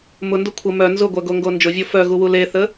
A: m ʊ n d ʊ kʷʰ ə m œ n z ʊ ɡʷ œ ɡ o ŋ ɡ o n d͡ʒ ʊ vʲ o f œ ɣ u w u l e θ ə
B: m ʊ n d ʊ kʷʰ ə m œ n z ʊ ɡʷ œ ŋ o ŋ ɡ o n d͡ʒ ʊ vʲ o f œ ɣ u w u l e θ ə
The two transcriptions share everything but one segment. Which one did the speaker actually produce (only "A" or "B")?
A